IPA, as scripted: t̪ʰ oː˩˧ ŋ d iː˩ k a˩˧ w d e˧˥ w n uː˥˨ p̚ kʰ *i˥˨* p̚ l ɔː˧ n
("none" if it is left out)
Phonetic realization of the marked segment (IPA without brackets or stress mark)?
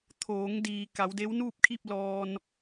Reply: i˥˨